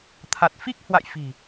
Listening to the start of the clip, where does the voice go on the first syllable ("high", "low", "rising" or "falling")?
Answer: low